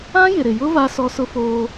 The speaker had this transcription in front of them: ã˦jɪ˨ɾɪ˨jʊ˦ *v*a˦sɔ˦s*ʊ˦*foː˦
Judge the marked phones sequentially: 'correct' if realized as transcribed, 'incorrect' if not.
correct, correct

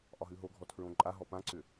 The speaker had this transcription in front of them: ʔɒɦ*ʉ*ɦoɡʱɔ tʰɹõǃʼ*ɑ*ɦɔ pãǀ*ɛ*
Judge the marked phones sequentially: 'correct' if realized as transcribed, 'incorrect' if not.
correct, incorrect, incorrect

